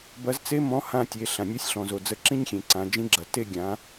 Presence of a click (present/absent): present